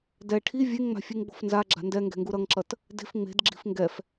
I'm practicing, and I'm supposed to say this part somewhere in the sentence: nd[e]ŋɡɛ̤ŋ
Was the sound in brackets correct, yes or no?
no